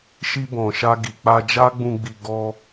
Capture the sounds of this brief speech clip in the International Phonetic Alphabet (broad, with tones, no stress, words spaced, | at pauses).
ʃi˧bɔ̃˨ʃa˧ ɡi˨k͡pa˧d͡ʒa˦ɡ͡bũ˧ ɡ͡bi˧ɡɔ˦